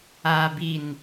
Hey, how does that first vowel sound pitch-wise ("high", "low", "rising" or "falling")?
low